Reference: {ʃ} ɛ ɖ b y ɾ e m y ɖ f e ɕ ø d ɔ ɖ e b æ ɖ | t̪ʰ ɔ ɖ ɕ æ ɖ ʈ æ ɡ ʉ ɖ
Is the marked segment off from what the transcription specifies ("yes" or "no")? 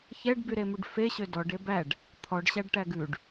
yes